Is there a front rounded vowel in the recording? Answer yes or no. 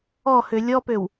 yes